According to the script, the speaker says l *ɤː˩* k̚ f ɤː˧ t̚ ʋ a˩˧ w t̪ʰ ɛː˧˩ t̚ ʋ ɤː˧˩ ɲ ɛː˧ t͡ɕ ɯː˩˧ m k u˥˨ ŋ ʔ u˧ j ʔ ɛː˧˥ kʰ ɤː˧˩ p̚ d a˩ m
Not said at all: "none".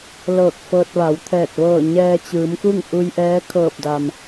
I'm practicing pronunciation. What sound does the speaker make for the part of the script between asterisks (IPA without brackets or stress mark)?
ɤː˧˩